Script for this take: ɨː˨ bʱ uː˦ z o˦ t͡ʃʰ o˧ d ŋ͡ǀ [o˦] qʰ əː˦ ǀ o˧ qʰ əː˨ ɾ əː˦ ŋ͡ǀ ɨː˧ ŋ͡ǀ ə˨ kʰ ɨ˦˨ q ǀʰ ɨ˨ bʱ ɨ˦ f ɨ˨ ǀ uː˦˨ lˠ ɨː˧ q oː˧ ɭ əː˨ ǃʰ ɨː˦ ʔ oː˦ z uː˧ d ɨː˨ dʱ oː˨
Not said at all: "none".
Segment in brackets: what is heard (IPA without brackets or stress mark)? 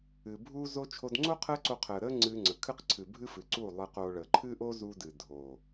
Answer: o˦